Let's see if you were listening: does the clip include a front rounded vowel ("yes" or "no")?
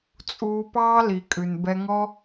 no